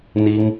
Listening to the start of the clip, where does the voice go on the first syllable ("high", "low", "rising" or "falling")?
high